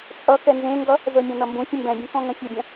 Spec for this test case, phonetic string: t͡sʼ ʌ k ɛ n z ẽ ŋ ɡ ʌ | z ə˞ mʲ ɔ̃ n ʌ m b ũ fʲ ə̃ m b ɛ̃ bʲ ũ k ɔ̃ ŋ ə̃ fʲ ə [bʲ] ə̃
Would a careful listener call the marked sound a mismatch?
no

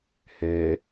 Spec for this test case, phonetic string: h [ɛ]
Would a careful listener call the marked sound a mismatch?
yes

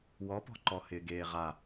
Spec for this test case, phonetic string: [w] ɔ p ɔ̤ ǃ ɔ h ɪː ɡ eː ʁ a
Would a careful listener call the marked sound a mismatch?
no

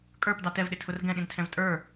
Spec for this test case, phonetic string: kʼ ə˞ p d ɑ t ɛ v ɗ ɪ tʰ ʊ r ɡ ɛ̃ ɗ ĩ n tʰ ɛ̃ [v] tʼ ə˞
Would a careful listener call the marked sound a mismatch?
no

